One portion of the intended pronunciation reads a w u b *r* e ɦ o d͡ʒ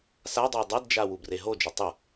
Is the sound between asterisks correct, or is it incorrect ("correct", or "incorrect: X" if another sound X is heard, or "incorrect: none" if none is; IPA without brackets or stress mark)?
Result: correct